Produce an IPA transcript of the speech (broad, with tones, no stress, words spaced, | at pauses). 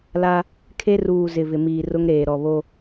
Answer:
la˦ | kʰe˦ ruː˨ zɪ˨vɪ˨ miː˨rʊ˦ŋɾeː˨ ɾɔ˨βo˦